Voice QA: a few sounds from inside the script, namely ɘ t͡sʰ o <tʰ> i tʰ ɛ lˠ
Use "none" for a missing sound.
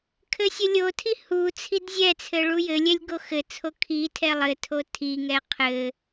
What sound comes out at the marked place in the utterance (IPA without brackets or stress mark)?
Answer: kʰ